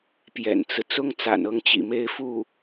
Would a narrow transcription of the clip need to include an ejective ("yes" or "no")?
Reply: no